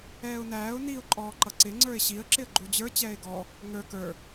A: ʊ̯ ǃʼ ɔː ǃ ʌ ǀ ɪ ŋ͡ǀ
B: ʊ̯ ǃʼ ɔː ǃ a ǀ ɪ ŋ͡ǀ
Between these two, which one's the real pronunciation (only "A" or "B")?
A